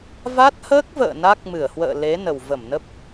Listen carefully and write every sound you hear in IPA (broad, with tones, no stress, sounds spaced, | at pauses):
v a˦˥ t̚ h əː˦˥ k̚ v ə̰ː˧˨ n a˦˥ k̚ m ɨ˧˩ ə̯ h w ə̰ː˧˨ l e˨˦ n ə˨˩ w v ə˧˩ m n ə˦˥ p̚